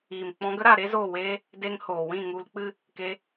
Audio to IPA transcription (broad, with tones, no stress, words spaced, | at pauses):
iː˨mk͡pɔ̃˧ ɡə˦ɾa˦˨ ɾe˦zoː˦˨weː˦ | de˧ŋhoː˨wĩ˦˨ ŋu˧lk͡pɨ˦ | ke˧